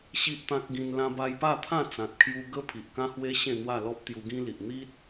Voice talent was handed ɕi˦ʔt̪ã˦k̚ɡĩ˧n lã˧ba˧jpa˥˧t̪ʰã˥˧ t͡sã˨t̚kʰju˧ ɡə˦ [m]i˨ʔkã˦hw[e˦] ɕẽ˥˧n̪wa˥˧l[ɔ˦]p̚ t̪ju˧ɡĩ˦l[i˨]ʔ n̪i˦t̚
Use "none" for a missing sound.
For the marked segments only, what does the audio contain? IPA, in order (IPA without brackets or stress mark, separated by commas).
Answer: pʰ, e˦, ɔ˦, i˨